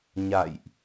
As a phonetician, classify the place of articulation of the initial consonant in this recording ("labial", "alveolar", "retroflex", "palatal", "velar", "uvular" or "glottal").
palatal